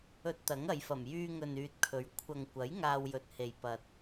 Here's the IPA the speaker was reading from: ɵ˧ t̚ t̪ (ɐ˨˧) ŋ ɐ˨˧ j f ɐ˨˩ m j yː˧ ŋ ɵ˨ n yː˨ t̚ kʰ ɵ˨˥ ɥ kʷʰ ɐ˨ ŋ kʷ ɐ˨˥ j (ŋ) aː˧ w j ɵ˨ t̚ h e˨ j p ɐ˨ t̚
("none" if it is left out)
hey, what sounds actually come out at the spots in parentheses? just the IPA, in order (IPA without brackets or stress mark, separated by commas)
ɐ˨˥, ŋ